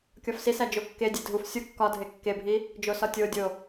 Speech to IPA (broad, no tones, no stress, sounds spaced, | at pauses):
kʲ ɒ f s i s æ d͡ʒ o kː e dʲ e dʱ u f sʲ u kː ɒ dʱ e kː e bʱ i | d͡ʒ o s ɒ tʲ o dʲ o